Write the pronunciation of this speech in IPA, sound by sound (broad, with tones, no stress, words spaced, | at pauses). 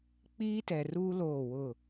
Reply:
k͡piː˦tɛ˨ruː˦ loː˦˨wʊ˦˨